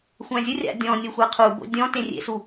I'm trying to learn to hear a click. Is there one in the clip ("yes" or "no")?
no